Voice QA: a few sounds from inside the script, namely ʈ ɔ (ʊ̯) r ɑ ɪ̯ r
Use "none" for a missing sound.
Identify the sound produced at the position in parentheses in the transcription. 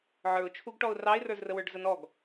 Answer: ʊ̯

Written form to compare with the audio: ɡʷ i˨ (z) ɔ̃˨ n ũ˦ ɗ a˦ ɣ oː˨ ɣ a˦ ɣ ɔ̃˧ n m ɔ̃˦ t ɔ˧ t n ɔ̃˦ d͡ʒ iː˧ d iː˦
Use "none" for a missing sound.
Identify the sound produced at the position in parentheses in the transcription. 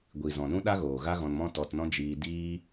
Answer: z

